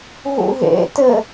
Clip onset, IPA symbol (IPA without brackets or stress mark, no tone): ɣ